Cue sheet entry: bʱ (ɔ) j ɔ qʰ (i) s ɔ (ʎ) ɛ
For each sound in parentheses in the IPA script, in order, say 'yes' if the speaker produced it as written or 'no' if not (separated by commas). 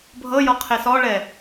no, no, no